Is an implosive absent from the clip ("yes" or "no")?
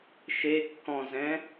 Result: yes